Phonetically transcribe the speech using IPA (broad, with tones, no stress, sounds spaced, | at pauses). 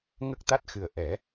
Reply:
ŋ ə˦˥ k̚ t̪ a˦˥ t̚ x ɨ˨˩ ə̯ ʔ ɛ˨˩˦